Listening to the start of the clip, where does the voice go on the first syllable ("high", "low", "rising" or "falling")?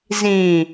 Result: low